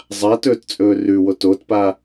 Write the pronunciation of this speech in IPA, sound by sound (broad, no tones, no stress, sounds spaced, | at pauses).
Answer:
zˤ a t ɵ t t͡sʼ ɵː r ʉ w o t o t p a